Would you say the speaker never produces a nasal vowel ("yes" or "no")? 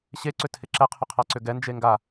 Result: yes